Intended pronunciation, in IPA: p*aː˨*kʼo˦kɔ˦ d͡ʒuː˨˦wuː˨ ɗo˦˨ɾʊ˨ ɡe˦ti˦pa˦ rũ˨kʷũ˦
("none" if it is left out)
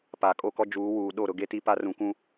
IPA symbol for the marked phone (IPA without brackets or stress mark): aː˨